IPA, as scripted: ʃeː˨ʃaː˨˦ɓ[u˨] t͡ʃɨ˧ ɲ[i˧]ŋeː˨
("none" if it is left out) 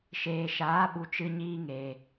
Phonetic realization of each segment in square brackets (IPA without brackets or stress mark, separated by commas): u˨, iː˧